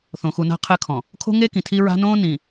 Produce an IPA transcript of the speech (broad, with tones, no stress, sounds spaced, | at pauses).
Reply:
θ õ˨ x u˨ n a̤˦ qʰ ɘ˦ kʰ ɔ̃˨ | kʰ o̤˦ ŋ e˦ k ĩ˨ tʰ i˦ ɹ a̤˦ n õː˦ n ĩ˨